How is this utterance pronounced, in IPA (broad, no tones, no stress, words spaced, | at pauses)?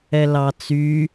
ɛlɑt͡sy